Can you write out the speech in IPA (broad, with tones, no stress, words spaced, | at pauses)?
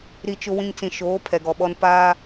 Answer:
ɾi˦t͡ʃʊ˦wĩ˦ŋ t͡sĩ˨ʃoː˨˦ pʰɛ˨ɡɔ˨ɓɔ˦n paː˦